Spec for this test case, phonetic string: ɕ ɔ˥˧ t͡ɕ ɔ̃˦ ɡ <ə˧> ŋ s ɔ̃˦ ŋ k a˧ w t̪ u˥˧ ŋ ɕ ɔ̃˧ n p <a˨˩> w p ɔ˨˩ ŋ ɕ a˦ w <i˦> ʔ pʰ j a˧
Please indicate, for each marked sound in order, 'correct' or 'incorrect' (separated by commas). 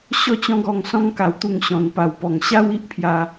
incorrect, correct, correct